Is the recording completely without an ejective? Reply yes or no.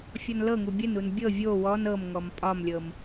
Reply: no